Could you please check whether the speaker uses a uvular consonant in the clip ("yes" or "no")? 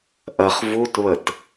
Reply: yes